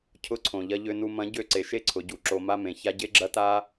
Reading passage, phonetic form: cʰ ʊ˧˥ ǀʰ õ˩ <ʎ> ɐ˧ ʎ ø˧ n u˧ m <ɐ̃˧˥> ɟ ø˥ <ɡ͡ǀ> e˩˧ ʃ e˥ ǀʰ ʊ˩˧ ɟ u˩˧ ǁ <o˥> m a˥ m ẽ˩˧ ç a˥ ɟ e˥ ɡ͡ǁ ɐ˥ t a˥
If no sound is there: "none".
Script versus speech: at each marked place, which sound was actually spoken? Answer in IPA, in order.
ʎ, ɐ̃˧˥, ǀ, o˧

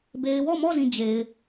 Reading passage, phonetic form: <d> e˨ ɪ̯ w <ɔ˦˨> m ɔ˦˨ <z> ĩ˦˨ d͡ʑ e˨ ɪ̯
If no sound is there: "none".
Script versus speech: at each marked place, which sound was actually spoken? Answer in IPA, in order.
b, ɔ˦˨, z

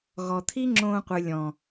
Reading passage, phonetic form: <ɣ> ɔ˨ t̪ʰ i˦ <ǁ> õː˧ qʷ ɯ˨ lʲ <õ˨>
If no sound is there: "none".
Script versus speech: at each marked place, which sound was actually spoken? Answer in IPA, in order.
ɣ, ŋ͡ǁ, ɔ̃˨

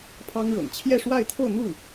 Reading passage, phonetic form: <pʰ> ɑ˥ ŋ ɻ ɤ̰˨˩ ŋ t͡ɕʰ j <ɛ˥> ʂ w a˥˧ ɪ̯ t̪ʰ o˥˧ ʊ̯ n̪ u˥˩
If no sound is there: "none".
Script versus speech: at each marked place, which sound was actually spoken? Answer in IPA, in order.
pʰ, ɛ˥˧

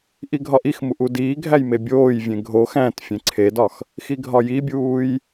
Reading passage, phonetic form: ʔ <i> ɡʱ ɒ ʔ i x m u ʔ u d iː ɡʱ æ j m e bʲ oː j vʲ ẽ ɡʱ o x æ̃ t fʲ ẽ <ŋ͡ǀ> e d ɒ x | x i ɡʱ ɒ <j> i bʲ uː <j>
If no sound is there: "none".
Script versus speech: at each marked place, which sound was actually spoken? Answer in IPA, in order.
i, ǀʰ, j, j

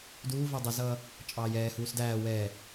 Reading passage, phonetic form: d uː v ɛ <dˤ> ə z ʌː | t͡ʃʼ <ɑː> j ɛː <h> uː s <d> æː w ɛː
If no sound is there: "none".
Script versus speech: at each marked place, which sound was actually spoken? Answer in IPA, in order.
dˤ, ɑː, h, d

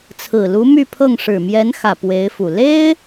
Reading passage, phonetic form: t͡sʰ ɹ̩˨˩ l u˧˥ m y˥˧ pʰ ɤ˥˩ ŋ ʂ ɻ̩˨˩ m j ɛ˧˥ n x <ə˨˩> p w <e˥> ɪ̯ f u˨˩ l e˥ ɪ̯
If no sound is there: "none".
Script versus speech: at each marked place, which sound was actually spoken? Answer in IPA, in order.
ä˨˩, e˧˥

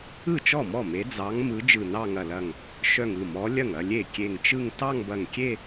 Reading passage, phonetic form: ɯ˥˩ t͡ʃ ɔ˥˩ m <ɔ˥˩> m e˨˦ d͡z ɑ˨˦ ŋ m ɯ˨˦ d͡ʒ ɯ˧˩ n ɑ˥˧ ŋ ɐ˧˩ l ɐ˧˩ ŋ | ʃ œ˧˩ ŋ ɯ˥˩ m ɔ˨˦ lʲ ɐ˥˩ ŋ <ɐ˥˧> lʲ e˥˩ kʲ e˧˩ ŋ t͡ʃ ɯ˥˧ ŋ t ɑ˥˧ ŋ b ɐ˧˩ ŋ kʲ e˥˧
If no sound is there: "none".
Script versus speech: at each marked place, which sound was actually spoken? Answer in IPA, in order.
ɔ˥˩, ɐ˥˧

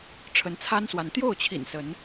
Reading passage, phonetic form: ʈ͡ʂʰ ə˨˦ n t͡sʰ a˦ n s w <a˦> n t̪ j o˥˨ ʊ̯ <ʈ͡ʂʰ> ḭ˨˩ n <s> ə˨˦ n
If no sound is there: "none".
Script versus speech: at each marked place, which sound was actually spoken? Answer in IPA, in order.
a˨˦, t͡ɕʰ, s

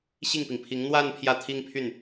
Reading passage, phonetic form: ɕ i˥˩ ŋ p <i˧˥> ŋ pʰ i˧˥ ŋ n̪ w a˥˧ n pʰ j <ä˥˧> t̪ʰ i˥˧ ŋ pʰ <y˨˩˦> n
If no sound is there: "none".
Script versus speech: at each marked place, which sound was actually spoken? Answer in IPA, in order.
i˩, ä˥˧, y˥˩

